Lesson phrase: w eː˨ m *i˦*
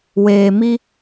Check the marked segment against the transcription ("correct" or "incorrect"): correct